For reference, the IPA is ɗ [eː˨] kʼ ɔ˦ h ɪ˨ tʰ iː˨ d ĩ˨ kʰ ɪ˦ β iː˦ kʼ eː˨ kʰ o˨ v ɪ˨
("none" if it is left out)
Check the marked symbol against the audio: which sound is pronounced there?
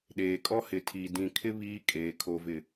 eː˨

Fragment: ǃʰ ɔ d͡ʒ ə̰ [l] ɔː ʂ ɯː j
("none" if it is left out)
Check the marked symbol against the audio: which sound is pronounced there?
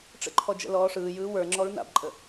l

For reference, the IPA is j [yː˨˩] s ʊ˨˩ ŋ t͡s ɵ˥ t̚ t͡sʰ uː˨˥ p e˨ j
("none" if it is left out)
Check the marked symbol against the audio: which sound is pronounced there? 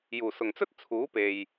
uː˨˩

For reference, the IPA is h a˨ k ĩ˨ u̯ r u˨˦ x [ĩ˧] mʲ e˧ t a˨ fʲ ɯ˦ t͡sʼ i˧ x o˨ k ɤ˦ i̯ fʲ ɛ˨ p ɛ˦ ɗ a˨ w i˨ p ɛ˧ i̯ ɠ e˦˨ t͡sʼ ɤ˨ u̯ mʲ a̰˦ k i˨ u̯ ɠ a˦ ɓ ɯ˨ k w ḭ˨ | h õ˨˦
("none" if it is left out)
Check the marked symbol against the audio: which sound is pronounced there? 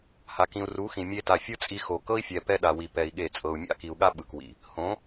ĩ˨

